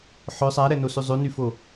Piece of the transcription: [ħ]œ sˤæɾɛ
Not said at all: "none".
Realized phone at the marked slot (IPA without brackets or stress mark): ħ